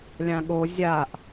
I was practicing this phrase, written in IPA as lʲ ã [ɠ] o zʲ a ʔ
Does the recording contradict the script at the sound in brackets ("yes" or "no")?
no